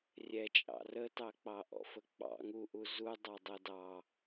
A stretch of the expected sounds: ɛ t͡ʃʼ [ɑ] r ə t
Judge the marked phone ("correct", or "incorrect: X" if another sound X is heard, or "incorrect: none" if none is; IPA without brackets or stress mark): incorrect: ɑ̰